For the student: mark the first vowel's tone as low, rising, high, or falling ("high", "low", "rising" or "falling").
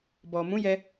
low